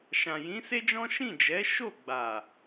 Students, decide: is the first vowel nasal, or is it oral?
nasal